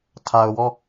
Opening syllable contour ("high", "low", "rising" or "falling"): low